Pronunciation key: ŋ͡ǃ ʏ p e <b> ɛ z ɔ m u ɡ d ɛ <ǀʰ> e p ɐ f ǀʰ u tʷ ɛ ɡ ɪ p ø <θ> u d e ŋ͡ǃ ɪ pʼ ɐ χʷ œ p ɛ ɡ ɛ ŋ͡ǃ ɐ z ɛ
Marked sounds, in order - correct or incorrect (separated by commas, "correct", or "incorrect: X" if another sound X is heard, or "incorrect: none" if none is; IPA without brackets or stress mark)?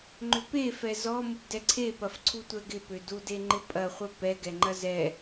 incorrect: f, correct, incorrect: d